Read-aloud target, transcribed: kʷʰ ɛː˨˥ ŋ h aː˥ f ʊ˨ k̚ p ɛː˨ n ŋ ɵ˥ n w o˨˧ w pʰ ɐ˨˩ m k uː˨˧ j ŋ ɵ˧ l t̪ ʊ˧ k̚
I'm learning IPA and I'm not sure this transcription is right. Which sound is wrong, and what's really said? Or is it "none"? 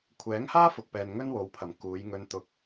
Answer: l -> n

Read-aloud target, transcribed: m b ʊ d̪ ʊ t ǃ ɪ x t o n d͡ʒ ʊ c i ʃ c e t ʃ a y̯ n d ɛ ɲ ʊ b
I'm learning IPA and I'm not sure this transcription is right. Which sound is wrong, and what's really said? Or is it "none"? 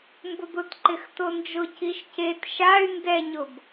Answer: none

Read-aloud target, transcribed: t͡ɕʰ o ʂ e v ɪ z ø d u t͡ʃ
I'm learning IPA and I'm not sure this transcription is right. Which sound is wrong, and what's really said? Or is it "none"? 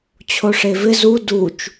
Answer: ø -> u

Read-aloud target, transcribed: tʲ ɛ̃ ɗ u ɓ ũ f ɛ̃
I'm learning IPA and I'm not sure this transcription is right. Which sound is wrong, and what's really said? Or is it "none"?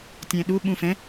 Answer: none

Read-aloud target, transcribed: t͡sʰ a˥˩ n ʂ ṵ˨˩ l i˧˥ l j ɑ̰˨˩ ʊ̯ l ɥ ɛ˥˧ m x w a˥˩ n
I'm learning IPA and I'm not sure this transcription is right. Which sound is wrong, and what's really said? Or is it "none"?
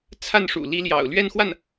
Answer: m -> n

